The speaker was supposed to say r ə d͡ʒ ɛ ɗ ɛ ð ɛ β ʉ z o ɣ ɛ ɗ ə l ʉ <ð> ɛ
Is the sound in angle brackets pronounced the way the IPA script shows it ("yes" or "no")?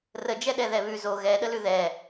yes